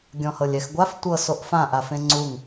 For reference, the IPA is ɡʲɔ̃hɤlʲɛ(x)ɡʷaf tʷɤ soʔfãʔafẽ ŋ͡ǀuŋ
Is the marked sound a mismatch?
no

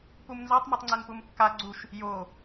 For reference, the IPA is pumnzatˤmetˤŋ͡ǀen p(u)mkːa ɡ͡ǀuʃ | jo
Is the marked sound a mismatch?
no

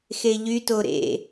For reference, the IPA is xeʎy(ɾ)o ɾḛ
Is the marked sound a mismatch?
yes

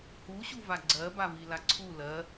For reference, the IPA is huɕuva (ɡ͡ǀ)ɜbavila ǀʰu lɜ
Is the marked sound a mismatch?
no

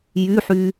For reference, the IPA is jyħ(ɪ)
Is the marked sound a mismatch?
yes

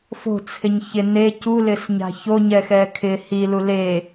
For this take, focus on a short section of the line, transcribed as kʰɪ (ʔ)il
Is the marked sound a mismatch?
yes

